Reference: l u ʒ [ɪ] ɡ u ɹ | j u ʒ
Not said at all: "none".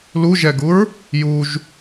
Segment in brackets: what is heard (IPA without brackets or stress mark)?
ɛ